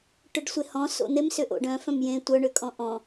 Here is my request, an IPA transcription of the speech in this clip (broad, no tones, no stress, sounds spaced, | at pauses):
ʈ ʏ ɖ sʷ e h ɔ̃ s o̰ n̪ e m s ʏ ʔ o̰ ɖ œ̃ f œ̃ m j ẽ tʷ œ ɳ ʏ kʼ ɔ̃ ʔ ɔ̃